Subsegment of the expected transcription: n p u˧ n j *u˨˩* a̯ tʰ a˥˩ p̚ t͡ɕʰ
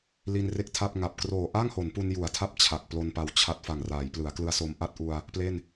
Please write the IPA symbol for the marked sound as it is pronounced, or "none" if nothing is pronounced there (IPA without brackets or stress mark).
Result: u˨˩